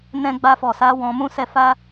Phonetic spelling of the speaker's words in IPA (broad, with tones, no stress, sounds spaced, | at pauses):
n ɛ̃˧ ɡ͡b a˧ f ɔ˨ s a˨˦ w ɔ̃˧ m ũ˦ s ɛ˦˨ f a˧